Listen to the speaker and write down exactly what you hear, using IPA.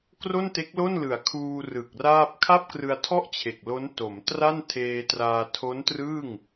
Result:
k r o˥˩ n t e˦˥ k̚ l o˥˩ n l ɯ˨˩ a̯ kʰ uː˧ r ɯ˨˩ k̚ r aː˥˩ p̚ kʰ a˥˩ p̚ k r ɯ˧ a̯ tʰ ɔ˥˩ ʔ t͡ɕʰ e˨˩ k̚ l o˦˥ n t o˩˦ m t r a˥˩ n tʰ eː˧ t r aː˧ tʰ o˦˥ n t r ɯː˥˩ ŋ

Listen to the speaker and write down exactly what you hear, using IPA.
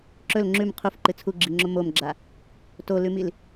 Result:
ǁ ɵ l ŋ͡ǁ ʉ m qʰ u f ǃ ɨ t͡sʰ u ɡ͡ǁ i ŋ͡ǁ o m o m ɡ͡ǁ a | t o l ʉ m i l

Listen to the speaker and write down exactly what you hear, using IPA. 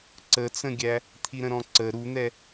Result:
ǀ ə t͡s ə̃ ɡʲ æ | t̪ʰ i ɾ ə̃ ɾ ɔ̃ ǀ ə ɾ u n̪ ɛ

